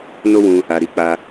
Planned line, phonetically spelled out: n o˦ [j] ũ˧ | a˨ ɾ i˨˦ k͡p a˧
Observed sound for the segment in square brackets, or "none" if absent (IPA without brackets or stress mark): w